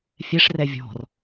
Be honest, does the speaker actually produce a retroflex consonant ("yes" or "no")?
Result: yes